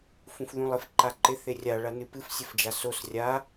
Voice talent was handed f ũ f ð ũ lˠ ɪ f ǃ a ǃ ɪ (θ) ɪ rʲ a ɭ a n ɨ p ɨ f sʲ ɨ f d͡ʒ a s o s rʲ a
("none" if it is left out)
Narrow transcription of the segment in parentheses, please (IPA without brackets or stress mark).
θ